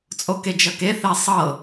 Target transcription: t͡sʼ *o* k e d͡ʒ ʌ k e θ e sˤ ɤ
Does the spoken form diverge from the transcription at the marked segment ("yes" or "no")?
no